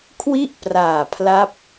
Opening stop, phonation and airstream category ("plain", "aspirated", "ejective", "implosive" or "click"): aspirated